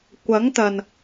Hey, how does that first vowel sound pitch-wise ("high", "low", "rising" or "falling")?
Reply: rising